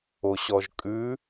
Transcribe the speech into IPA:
o ɕ ɔ ʒ kʼ ʉ

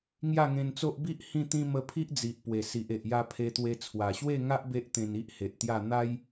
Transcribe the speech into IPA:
ŋ j a˥˧ ŋ ẽ˧ n t͡s o˦ ʔ b i˦ ʔ h ĩ˥˧ t̪ ĩ˦ m ə˧ pʰ i˦ ʔ d͡z i˨ ʔ p w e˨˩ s i˨ ʔ e˨ ʔ j a˧ pʰ e˧ t̪ w e˧ t͡sʰ w a˨˩ ɕ w e˥˧ ŋ a˦ ʔ b e˦ ʔ t̪ ẽ˧ n i˦ ʔ h e˨ ʔ t̪ j a˥˧ n̪ a˦ j

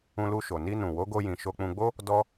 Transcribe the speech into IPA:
ũ˧ l u˧ ʃ o˨ n i˧ n ũ˨ w o˨˦ ɡ o˧ j ĩ˨ ʃ o˧ k͡p ũ˧ ɡ͡b o˦ | d ɔ˦

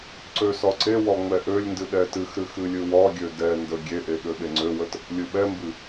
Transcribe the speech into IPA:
ǀ ø s ɒ ǀ e w ɒ ŋ͡m ɛ ʔ ø lʲ n d ɨ ɗ ɛ t ɨ x ɾ ɨ x ɨ lʲ ɨ w ɒ ɡʲ ø d ɛ n d ə ɡʲ e ʔ e ɠ ø ɓ e ŋ͡ǀ ø w ə t | lʲ ɨ ɓ ɛ m b ɨ

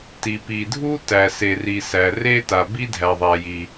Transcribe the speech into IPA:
t i˩ p i˩ dʱ u˥ t æ˩ s e˩ r i˩ s æ˩ r e˥ t a˩ b i˥ dʱ æ˩ ðˤ æ˩ j i˩

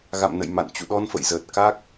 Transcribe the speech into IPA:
ɣ a̰˧˨ m n ə̰˧˨ j m a̰˧˨ n t͡ɕ ṵ˧˨ ɗ ɔ˧ n f ə̰˧˨ j z əː˨˩ t̚ k a˦˥ k̚

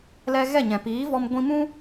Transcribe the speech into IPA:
l ɛ˧ ɣ ɛ˦˨ ɲ ɛ̃˨ p iː˨˦ v ɔ˧ m ɡʷ ĩ˧ m ũ˦

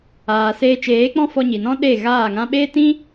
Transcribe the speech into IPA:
aː˨ s eː˧ t͡ʃ eː˨˦ k͡p ɔ̃˦ f ɔ˧ ɲ i˨ n ɔ̃˦ ɗ e˦˨ ɣ aː˦˨ ŋ ã˦ ɓ eː˦ t ĩ˦

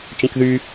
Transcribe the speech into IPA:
t͡ʃ ĩ k ð y

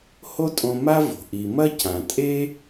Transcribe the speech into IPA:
h o˥ tʼ õ˧ m a˥ v o̤˩ ʔ i˩ m ɐ˥ c ã˩ tʼ e˥

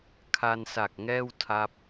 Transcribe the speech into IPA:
kʰ a˧ n s a˨˩ k̚ ŋ ɛː˥˩ w tʰ a˦˥ p̚

